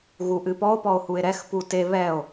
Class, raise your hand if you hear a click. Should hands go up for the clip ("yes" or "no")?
no